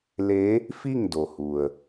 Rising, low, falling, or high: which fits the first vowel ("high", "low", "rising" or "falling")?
rising